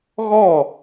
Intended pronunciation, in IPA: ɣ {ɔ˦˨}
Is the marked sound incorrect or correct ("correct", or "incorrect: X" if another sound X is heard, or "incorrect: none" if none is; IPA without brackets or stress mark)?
correct